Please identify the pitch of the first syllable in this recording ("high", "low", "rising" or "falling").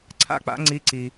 falling